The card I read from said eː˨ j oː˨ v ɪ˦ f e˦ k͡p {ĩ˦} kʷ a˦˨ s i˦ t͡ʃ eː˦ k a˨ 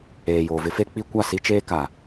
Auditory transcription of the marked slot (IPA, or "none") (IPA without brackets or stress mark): i˦